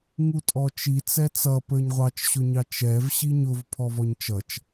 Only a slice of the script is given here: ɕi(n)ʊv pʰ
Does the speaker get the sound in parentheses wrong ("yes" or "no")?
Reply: yes